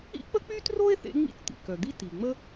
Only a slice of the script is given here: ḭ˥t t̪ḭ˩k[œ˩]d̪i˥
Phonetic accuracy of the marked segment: correct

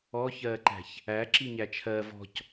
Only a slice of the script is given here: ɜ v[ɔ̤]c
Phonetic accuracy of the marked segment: correct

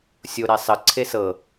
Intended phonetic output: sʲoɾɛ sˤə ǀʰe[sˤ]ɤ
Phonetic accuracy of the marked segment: incorrect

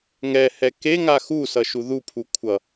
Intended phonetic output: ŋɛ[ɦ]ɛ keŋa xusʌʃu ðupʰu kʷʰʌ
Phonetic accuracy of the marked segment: incorrect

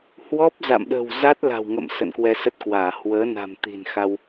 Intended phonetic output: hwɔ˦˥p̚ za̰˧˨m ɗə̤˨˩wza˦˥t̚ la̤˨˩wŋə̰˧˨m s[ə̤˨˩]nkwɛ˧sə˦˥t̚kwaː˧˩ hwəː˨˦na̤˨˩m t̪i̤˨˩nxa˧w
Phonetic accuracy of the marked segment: incorrect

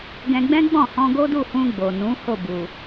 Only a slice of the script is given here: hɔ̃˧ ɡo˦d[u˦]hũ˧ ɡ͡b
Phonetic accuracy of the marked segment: incorrect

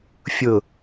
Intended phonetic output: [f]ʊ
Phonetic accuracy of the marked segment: incorrect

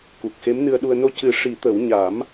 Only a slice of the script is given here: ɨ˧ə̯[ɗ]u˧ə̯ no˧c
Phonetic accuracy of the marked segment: correct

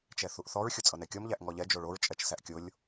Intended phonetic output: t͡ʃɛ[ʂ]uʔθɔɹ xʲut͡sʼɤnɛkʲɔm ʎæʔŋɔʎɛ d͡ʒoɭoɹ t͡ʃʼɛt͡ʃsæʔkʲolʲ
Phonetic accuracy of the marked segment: incorrect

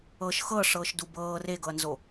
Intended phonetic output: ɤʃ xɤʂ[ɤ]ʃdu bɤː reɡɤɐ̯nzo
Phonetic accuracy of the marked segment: incorrect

